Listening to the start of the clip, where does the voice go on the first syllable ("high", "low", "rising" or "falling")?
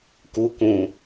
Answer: high